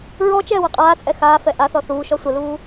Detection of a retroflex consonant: absent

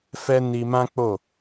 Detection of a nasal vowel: present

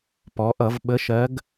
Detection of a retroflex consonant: absent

